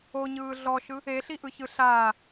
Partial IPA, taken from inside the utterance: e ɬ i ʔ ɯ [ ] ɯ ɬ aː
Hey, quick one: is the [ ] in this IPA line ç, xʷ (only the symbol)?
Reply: ç